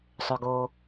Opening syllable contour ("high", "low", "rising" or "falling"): low